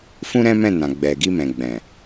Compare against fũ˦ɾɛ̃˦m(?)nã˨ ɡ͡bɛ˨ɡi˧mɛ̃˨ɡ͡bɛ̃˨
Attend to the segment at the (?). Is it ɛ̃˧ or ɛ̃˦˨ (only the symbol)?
ɛ̃˦˨